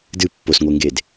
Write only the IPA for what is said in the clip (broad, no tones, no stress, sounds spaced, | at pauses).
d ɨ pː o s ŋʷ e ŋ ɡ e d